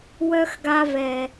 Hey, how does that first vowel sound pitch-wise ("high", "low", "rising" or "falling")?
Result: high